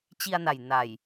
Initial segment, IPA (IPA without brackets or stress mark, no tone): t͡ɕ